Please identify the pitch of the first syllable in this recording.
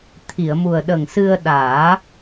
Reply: low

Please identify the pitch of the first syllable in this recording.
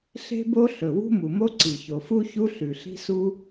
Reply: high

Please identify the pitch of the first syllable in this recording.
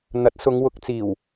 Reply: rising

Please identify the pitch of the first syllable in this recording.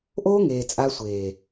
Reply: high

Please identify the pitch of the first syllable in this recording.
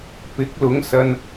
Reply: rising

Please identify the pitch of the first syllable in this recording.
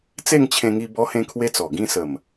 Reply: falling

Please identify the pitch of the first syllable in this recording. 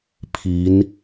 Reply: rising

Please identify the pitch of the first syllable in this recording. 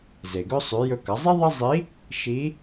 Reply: low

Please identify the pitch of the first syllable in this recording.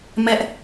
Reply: high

